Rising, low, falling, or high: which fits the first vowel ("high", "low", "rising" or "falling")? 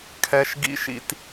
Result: low